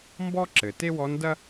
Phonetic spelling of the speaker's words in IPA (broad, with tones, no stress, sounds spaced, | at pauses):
m b ɔ˥ ǁ ɘ˩ t e˥ w ɔ˧˥ n d ɐ˥